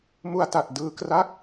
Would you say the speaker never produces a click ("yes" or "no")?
yes